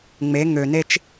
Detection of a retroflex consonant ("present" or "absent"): absent